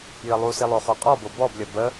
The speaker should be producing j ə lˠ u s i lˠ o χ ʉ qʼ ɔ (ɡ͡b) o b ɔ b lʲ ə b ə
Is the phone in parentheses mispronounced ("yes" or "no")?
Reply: yes